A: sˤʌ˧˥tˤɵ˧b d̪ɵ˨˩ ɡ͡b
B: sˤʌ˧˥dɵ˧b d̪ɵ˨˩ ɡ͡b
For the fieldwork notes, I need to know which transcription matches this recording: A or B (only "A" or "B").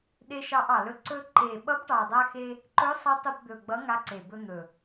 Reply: A